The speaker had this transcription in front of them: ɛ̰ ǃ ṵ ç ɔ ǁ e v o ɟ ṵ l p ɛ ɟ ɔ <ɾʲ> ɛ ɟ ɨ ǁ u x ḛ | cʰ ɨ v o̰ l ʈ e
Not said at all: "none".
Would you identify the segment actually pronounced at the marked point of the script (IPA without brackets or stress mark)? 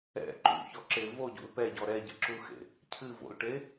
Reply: ɾ